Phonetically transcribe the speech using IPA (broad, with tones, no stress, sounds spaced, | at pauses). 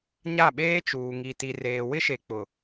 ɲ a˦˨ ɓ eː˦ t͡ʃ uː˨ ŋ i˨ t i˨ r eː˨ w ɪ˦ ʃ e˨ k͡p ʊ˨